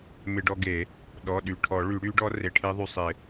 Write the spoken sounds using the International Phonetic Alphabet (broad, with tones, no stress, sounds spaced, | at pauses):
m ɪ˧ ɖ ɔ˧ ɡ e˨˩˦ | ɗ ɔ˩˧˩ ɗ y˩˧˩ ʈʰ ɔ˨˩˦ ɭ y˨˩˦ ɽ y˧˥ ɖ ɔ˧˥ r e˩˧˩ ʈʰ e˧˥ ðˤ y˩˧˩ sˤ ɪ˨˩˦